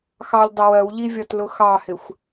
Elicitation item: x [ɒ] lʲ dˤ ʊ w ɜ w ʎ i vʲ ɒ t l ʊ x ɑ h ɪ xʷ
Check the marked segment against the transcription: incorrect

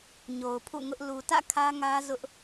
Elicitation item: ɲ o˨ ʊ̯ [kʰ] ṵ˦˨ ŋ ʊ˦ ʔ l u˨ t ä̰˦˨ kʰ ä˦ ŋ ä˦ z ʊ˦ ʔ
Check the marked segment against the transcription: incorrect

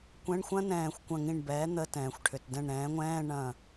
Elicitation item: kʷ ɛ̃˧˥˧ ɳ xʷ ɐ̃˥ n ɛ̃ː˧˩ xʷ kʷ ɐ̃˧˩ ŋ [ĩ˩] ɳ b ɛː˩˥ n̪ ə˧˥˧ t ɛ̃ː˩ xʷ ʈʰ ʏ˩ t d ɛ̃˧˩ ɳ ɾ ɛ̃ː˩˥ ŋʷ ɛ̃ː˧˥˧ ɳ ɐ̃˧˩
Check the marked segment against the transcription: incorrect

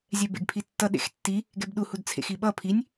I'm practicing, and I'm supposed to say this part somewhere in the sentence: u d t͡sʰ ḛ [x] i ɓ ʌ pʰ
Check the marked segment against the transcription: correct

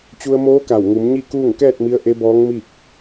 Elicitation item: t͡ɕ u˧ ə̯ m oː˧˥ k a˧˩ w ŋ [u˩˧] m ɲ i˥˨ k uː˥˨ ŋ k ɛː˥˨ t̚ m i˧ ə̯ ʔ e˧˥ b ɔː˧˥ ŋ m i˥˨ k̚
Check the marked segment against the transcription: correct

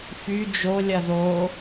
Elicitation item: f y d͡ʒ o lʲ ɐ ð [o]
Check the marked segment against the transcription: correct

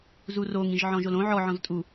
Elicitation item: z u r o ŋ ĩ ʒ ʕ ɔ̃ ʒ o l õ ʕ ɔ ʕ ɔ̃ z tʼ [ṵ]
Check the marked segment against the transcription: incorrect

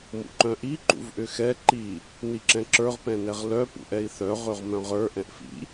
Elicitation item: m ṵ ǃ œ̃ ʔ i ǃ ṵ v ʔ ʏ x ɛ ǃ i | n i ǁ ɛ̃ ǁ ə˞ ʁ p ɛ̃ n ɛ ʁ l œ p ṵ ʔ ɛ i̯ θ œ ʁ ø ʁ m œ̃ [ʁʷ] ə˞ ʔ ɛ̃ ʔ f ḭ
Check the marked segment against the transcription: incorrect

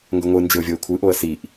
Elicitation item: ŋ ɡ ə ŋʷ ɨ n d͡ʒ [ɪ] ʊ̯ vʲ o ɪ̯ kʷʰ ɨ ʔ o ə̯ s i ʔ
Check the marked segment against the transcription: correct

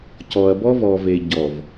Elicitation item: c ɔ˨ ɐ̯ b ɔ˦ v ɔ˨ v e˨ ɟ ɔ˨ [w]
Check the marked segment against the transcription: incorrect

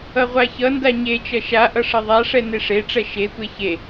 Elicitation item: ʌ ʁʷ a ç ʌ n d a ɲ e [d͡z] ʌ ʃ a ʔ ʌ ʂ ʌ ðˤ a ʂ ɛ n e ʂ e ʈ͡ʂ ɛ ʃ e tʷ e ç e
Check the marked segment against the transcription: incorrect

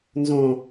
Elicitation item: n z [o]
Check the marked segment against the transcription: incorrect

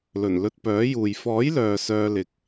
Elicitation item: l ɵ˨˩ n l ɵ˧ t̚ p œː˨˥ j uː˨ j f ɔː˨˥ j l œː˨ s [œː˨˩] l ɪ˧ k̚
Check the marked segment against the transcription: incorrect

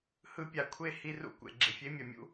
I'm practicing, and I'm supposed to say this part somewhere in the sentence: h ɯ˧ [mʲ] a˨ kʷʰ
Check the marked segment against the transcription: incorrect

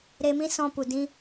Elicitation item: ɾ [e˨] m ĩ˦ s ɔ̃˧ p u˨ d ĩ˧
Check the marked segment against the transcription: incorrect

